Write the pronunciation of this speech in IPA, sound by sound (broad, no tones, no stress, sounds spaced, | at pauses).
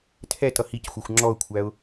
tʰ ɛ t ʌ h i c xʷ ʌ xʷ ŋ͡ǁ ɔ ʊ̯ kʷʰ æ ʊ̯